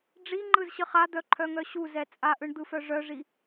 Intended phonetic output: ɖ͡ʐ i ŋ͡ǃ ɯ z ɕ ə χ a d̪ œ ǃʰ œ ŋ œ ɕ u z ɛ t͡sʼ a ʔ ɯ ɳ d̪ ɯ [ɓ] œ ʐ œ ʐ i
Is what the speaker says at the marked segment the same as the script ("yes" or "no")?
no